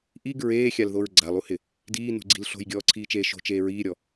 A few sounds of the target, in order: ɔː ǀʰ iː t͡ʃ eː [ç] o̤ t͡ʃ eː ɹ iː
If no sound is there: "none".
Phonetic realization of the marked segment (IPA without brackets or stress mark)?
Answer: ʃ